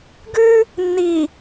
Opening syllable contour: high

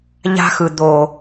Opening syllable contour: high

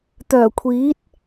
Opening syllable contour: low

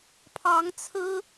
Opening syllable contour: rising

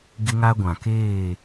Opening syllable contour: high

